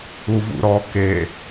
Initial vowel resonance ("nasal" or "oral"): oral